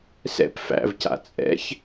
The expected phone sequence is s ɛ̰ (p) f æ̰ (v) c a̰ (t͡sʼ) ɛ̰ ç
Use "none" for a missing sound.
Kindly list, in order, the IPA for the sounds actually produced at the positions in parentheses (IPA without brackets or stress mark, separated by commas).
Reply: p, v, t͡sʼ